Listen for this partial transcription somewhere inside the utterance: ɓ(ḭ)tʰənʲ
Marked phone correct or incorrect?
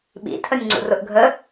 correct